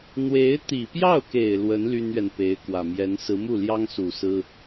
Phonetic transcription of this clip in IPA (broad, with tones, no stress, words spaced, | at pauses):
n̪we˧˥ɪ̯t̪i˨˩pjɑ˥˩ʊ̯ke˨˩ɪ̯ lwə˧˥n ly˥nɥɛ˨npe˧˥ɪ̯kwä˨˩ mjɛ˧˥n sɹ̩˧˥mu˥˩ljɑ˥ŋsu˨˩ sɹ̩˥